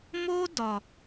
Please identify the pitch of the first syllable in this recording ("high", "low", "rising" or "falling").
high